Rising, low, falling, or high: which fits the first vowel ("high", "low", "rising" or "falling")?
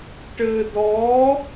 low